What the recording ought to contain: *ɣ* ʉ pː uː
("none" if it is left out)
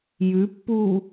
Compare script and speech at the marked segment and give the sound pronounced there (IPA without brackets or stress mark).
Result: j